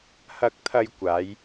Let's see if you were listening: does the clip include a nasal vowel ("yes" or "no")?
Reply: no